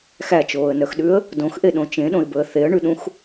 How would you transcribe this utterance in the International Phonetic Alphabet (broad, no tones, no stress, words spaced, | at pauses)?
xæt͡ʃoːə̯nœxɗʉə̯ | dõxʔeɗõ t͡ʃẽɗõɪ̯bɵə̯ θeə̯ɳʉɗũx